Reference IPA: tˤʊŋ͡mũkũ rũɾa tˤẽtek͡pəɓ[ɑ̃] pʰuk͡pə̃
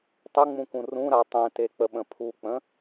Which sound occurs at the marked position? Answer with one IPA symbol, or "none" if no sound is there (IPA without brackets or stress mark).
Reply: ə̃